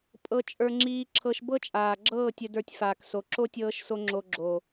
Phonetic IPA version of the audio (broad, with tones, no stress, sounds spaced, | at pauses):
pʼ ɤ˧ t͡ʃʼ ə˞˧ ŋ͡ǁ iː˧ ǁʰ ɤ˧ ʃ b ɤ˦ t͡ʃʼ aː˨ ɡ͡ǁ ɤː˦˨ tʲ œ˧ d ə˞˧ tʲ f aː˨ k s o˨ ǁ o˦ tʲ ɤː˧ ʃ s o˧ ŋ͡ǁ o˧ ɡ͡ǁ o˨